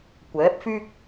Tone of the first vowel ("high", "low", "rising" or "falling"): rising